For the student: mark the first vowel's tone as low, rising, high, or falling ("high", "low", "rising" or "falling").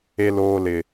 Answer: high